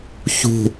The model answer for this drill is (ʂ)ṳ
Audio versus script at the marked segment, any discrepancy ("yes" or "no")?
yes